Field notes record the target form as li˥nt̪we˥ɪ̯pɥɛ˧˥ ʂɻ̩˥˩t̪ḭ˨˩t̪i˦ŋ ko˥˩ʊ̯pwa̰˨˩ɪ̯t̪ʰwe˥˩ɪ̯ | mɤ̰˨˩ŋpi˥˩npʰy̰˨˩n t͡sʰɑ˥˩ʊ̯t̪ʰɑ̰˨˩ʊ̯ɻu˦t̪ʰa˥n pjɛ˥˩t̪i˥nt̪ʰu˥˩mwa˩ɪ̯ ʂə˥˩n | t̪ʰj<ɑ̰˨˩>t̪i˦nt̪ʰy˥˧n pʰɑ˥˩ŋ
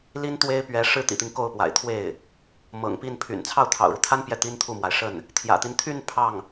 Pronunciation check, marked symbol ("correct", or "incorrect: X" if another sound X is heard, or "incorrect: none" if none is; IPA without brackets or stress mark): incorrect: ä̰˨˩